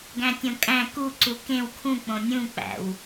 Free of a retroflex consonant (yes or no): yes